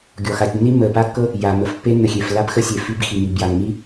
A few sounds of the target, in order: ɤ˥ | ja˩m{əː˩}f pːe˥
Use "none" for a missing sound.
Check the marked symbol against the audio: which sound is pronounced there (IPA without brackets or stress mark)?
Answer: ə˩